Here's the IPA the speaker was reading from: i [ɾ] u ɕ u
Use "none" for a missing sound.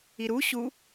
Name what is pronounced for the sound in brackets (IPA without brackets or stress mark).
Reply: ɾ